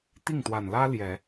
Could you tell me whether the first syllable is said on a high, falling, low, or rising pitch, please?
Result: falling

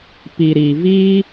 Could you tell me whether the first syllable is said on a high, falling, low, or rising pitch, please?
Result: low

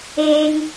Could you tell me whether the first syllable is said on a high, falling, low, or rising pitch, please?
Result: high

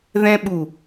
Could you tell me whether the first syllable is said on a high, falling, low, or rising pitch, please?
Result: high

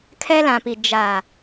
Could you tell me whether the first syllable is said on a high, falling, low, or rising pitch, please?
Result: high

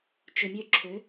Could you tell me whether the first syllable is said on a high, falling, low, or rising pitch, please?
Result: low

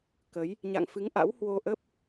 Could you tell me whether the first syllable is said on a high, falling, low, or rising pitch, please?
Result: rising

